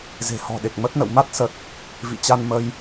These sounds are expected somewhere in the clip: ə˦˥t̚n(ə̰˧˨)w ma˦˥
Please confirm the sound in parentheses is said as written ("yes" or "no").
yes